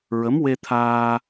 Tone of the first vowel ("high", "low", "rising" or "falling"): rising